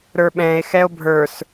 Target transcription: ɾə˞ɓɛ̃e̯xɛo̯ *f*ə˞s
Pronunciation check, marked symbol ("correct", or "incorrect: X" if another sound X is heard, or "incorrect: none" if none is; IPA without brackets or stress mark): incorrect: bʱ